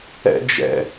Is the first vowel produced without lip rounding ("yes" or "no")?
yes